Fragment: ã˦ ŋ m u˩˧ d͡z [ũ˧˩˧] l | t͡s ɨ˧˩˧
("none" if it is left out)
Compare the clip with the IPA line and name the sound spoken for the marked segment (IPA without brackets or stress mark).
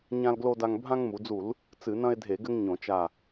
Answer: u˧˩˧